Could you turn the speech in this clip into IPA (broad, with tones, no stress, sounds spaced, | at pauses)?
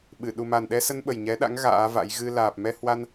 ɓ ɨ˧˩ ɗ u˨˩ m a˨˩ n ɗ ɛ˧ s ə˧ n ɓ ə˨˩ j ɲ ɛ˨˦ ɗ a̰˧˥ ŋ ɣ a̰ː˧˥ v a̰˧˥ j ɣ ɨ˧ l aː˨˩ p̚ m ɛ˧ h w a˧ n